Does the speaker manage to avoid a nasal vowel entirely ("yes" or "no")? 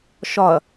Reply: yes